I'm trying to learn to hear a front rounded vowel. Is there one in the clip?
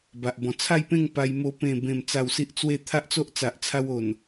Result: no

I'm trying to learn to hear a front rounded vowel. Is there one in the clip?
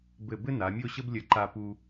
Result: no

